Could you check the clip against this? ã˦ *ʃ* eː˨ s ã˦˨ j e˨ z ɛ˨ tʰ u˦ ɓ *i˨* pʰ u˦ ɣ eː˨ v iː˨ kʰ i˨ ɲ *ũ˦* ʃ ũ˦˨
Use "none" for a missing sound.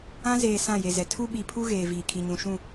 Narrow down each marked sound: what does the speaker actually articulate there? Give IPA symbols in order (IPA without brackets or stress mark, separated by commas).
z, i˨, ũ˨